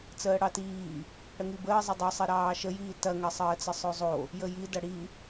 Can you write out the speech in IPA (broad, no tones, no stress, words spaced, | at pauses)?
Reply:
t͡səːɽɑtiː | ɽəŋibəːzˤə dˤɵsˤi ɾɑːʃəjiː tɐŋɐsˤəːt͡sə sˤɵzˤo | jəji dɐɽi